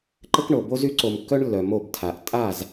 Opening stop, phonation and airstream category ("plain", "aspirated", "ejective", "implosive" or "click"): click